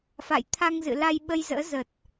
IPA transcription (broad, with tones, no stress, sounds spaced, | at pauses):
f a̰˧˨ j t̪ʰ a˧ ŋ z ɨ̰˧˨ l a˧ j ɓ ə˧ j z ə̰ː˧˥ z ə˨˩ t̚